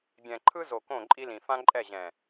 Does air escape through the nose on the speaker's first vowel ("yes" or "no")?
yes